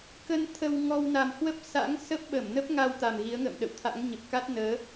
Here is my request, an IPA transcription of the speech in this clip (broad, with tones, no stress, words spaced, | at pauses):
kə˧n t̪ʰə˧w ŋɔ˧w na˨˩m hwə˦˥p̚sa̰˧˥ŋ sə˦˥p̚ɓə˧˩mnə˦˥p̚ŋa˧w t̪a˨˩mɣi˨˦ə̯ŋə̰ː˧˨m ɗə̰˧˨wt̪ʰa̰˧˥ŋɲə˨˩p̚ ka˦˥t̚nəː˨˦